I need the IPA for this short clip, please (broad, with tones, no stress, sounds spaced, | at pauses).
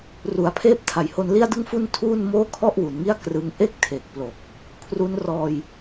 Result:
r u˩˦ a̯ pʰ eː˦˥ p̚ tʰ a˩˦ j h o˧ n l i˥˩ a̯ d ɯ˥˩ ŋ f u˥˩ n tʰ uː˥˩ n m oː˥˩ kʰ ɔ˥˩ ʔ w u˩˦ n ŋ i˥˩ a̯ k r ɯ˦˥ ŋ ʔ e˥˩ k̚ tʰ e˨˩ k̚ p l o˨˩ k̚ | kʰ r u˦˥ n r ɔː˧ j